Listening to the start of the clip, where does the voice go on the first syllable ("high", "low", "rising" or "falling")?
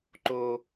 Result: high